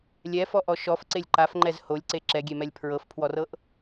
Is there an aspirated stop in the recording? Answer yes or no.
yes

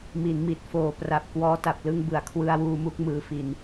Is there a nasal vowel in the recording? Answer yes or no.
no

